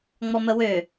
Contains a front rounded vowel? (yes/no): yes